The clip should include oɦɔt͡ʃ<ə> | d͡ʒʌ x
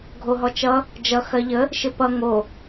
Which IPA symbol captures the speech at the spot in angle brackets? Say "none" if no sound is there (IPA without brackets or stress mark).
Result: ʌ